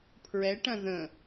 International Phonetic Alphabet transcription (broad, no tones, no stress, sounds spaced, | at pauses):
pʰ ɹ ɛ ʈ ɐ̃ ð ə̃